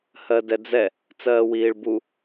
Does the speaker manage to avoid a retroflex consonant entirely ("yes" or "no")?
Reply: no